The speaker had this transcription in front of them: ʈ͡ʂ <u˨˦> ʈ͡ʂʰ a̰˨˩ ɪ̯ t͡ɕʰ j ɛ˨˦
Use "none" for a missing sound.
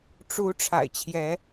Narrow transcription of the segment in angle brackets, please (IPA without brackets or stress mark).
u˨˦